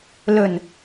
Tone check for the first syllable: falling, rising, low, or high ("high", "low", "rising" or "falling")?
low